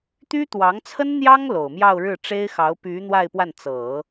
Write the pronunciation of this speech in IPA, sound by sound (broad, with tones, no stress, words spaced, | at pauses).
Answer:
t̪y˥ t̪wɑ˧˥ŋt͡sʰə˥nn̪jɑ˥ŋ lo˨˩ʊ̯mjɑ˥˧ʊ̯ɻɻ̩˥˩ ʈ͡ʂe˥ɪ̯xɑ˧˥ʊ̯py˧˥ n̪wa˥˧ɪ̯pwa˥˩n t͡sɤ˨˩˦